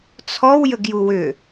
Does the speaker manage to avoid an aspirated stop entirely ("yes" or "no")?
no